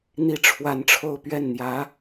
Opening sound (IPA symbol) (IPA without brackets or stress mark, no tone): n̪